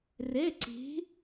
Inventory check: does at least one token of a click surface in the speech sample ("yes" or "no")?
yes